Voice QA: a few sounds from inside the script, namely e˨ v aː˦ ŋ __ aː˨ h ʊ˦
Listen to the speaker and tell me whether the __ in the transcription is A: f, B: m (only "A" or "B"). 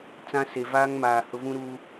B